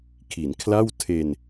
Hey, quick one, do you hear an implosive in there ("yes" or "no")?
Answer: no